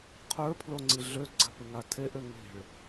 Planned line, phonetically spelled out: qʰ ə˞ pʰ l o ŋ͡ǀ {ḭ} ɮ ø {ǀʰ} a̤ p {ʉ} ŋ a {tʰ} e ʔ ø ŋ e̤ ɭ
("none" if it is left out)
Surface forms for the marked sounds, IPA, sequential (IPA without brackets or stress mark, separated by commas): i, ɡ͡ǀ, ɨ, tʰ